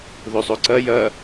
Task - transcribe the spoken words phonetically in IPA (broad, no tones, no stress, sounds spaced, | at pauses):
ð o sˤ o ǀ ɐ j ɐ